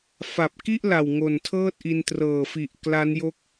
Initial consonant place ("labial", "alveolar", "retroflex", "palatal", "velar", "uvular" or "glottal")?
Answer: labial